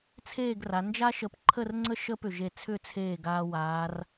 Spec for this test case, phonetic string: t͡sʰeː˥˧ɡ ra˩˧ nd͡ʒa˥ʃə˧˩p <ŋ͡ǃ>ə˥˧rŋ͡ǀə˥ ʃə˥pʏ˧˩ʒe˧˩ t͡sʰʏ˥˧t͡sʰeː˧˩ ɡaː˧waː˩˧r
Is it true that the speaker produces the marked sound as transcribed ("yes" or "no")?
no